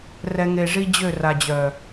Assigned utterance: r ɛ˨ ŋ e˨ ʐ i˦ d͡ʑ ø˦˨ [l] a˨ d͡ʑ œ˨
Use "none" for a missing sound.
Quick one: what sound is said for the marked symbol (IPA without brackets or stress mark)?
r